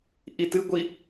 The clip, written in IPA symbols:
ʔitɨɡʷi

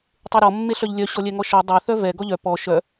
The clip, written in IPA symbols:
tˤeɾɔ mːeɬœʎlʲœ ɕɔlʲɛŋɔʃɔ dˤœ θœvɛ ɡɔʎœ pɔ ʃœ

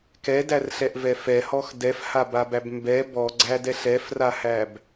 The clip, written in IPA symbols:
kɛdærɬɛʔvɛ fɛhɔx dɛfhababæb mbɛ bɔɡ͡ǀædɛ ɬɛfrahæb

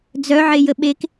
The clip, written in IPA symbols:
d͡zœʕejə ɓek

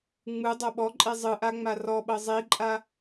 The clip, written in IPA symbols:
ŋ͡mɯ dˤoɓɔǃʼe zˤɯʔa ŋ͡marɔɓɤ zˤiǃʼa

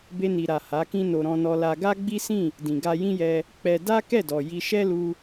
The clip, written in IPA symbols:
be˧ni˨ɾa˨ ha˨˦kĩ˦no˧ ɾɔ̃˧nɔ˧la˧ ɡa˦ɡ͡bi˦sĩ˦˨ | dĩ˨ɡa˧jĩ˦jɛ˧ | k͡pɛ˧ da˦ kɛ˦˨dɔ˨ ji˧ ʃɛ˦lu˧

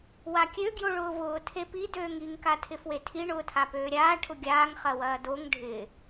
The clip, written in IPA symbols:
wakʲø ɡjoɭʊːvʊː tʰepi døːŋiŋ katʰɪfwetʰi ɳʊːtʰapøːɾʲaː ʈʰʊɡʲaːŋ χɐwɐːdoŋ ɖʱɪ

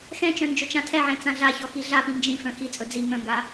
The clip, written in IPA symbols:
xɛ̃t͡ʃœ̃ nd͡ʒɵt͡ʃãtʰɛʕɛ̃ t͡sãɮaçɔ xiɮapĩ nd͡ʒĩfœ̃ xit͡sʼɵ d͡zi ŋœ̃ŋɡa

